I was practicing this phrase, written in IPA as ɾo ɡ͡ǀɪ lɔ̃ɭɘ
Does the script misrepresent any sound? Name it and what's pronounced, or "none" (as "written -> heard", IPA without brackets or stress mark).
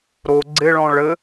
l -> ɭ